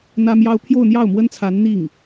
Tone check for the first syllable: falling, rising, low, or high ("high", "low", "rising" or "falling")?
high